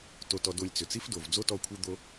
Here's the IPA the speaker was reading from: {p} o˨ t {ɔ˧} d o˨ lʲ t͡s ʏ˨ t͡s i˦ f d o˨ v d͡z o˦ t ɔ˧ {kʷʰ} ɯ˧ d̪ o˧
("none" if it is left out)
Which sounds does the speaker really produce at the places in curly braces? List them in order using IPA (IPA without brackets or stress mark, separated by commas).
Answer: t, ɔ˨, kʷʰ